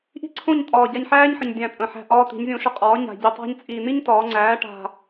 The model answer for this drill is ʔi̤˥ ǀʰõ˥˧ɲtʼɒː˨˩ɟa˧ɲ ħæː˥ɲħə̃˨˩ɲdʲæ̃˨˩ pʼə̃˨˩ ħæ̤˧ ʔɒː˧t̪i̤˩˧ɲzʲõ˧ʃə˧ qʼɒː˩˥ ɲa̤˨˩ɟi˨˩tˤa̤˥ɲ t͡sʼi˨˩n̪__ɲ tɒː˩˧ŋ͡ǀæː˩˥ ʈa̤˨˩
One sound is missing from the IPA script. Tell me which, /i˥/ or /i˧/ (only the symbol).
i˥